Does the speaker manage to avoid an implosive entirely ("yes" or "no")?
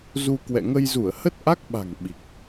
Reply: no